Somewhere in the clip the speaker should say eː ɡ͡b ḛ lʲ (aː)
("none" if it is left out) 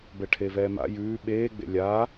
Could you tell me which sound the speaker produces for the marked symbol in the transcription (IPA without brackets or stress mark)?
aː